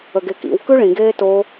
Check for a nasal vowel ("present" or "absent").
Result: present